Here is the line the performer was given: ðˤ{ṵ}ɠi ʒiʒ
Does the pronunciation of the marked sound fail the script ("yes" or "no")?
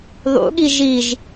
no